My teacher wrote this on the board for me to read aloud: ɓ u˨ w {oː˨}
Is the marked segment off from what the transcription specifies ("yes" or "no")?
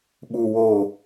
no